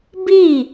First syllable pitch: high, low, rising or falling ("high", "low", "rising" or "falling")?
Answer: falling